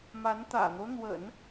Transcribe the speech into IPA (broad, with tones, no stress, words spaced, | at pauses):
ma˧˥nt̪ä̰˨˩n̪o˦ʊ̯ n̪wə̰˨˩˦n